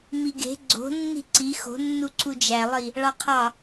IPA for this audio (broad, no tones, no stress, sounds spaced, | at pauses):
m i ɡ e̤ ɡ͡ǀ o̤ nː i̤ ǀ i x o̤ nː u ǀ u d͡ʒ æ lˠ i | ɭ ɑ qʰ ɑ